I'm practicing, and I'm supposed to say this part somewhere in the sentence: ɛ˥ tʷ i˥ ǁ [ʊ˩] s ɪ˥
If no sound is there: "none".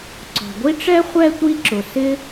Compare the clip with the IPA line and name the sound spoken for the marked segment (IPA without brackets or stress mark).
ʊ˩